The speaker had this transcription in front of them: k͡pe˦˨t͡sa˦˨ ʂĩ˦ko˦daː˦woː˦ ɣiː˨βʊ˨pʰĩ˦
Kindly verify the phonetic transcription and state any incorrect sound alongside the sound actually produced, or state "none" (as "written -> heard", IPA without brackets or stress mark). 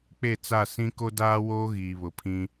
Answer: ʂ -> s